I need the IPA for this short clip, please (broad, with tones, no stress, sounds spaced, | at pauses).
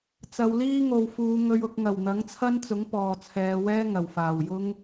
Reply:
t͡s ɐ˨˧ w l iː˥ ŋ o˨˧ w f uː˨˧ ŋ ɵ˨ ɥ ʊ˨ k̚ ŋ ɐ˨˩ w n̪ ɐ˨˥ ŋ t͡sʰ ɐ˥ n t͡s ʊ˨˥ ŋ p ɔː˨ t͡sʰ ɛː˨˧ w ɛː˥ ŋ ɐ˨˩ w f aː˨˩ w j ʊ˥ ŋ